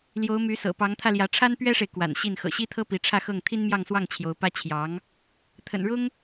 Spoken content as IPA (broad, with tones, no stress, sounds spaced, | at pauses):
l j o˧˥ ʊ̯ m y˧˥ s ɤ̰˨˩ p ɑ˧˥ ŋ t̪ʰ ä˧ l j ä˧˥ ʈ͡ʂʰ a˥ n p ɥ ɛ˥ ʂ e˨ ɪ̯ k w a̰˨˩ n ɕ i˥˩ n x ɤ̰˨˩ ɕ i˥ t̪ʰ ɤ˥ p i˧˥ ʈ͡ʂʰ ä˥˧ x ɤ˥˩ ŋ t̪ʰ i˥ n m j ɑ˥˧ ŋ s w ɑ˥˩ ŋ t͡ɕʰ j o˧˥ ʊ̯ p ä˥ t͡ɕʰ j ɑ˧˥ ŋ | t̪ʰ ə̰˨˩ n ɻ ʊ˥ ŋ